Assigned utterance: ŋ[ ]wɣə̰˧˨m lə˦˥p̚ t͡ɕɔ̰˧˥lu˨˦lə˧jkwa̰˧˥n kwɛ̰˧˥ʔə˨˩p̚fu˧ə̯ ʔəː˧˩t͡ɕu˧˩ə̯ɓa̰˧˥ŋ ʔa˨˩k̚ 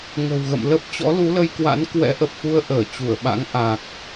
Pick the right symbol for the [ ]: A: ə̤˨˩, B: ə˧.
A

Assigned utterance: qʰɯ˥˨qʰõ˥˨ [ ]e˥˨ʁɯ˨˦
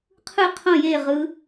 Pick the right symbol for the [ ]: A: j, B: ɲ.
A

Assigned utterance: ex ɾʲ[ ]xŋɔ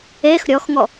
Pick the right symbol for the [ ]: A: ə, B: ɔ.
B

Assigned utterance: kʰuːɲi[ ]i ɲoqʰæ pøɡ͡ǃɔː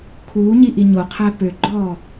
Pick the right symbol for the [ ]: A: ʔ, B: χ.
A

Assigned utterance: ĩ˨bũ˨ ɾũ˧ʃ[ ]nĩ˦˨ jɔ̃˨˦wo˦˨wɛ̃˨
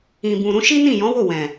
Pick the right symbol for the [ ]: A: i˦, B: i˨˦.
A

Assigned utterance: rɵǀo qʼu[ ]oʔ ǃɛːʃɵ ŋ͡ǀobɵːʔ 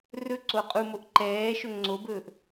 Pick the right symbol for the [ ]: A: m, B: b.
A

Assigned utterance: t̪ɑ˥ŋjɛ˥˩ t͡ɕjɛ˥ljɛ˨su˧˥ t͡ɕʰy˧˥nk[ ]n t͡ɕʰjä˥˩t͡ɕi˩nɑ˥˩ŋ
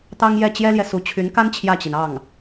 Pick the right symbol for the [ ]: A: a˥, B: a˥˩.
A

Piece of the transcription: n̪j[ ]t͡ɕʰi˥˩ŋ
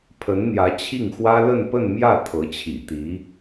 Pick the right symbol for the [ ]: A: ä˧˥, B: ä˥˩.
A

